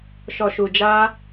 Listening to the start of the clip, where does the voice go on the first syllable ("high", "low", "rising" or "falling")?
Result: low